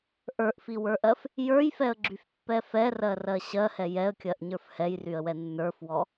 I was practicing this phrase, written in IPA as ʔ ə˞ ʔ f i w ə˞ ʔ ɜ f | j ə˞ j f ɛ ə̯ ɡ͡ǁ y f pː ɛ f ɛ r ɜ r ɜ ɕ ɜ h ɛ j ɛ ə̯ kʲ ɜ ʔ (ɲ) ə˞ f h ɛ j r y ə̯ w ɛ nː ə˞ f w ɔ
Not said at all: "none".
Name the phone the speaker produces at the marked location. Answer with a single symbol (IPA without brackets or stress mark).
ɲ